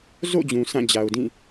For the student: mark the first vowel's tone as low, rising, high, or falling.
falling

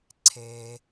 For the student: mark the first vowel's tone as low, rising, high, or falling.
low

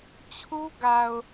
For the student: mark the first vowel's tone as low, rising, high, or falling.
high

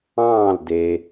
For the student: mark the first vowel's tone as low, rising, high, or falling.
falling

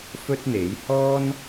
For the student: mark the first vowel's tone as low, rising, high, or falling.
high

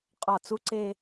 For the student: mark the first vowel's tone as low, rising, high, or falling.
falling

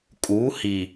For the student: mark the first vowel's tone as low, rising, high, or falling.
rising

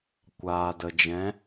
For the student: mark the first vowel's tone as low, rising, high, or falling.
low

